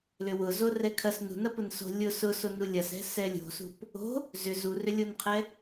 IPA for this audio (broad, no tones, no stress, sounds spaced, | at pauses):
l ʏ w ʊ z o r ɛ kʰ ɐ s n ṳ n ɐ p ʊ n s o̤ lʲ ʊ s ʊ s o n u lʲ ɐ s ɛ̤ s ɛ lʲ o̤ s ṳ p | o̤ | z ʏ z u r ʏ lʲ o n qʰ ɛ